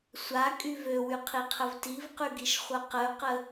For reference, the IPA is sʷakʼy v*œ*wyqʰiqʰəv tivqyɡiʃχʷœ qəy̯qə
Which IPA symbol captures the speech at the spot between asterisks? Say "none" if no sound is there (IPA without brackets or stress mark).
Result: ø